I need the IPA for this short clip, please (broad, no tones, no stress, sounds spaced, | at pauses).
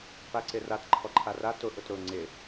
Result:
p a ǀ ɪ r a t ǃʰ ɔ ǃʰ a r a t ʊ ʔ ʊ t ɾ ʊ ŋ͡ǀ ɪ